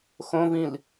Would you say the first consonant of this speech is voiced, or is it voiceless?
voiceless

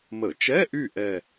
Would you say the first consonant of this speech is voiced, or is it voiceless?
voiced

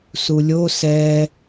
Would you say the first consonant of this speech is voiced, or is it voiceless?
voiceless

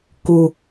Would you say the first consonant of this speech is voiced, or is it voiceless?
voiceless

